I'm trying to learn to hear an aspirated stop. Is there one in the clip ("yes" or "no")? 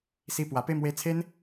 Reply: yes